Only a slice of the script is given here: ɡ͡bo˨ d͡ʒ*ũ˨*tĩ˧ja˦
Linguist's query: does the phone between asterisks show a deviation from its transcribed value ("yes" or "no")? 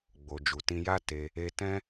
yes